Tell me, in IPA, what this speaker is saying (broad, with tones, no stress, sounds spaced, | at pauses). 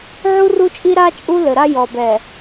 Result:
ʕ u˦ r u˦ t͡ʃʼ i˦ ɾ a˦ t͡ʃʼ u˦ l ɘ˨ ɾ a˦ j ɔ˨ b ɛ˨